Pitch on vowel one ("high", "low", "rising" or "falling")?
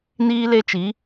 high